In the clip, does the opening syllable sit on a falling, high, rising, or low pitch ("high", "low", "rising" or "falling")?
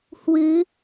rising